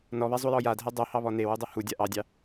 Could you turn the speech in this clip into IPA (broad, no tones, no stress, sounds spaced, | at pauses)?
n ɔ β ɛ zˤ u j ɔ j a dʱ ɛ dˤ ɵ h ɑ β ɔ n e w u dˤ u h u dʲ a ʔ ɑ dʲ ɑ